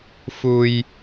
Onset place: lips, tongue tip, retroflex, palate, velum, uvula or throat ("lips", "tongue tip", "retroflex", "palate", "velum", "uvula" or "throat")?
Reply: lips